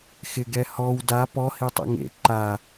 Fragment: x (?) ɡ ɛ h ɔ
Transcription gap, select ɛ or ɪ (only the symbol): ɪ